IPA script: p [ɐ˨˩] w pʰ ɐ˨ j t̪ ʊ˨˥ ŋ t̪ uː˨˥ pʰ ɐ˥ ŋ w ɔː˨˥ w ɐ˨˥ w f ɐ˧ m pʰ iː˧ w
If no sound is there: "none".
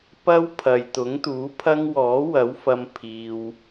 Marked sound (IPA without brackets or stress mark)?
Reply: ɐ˥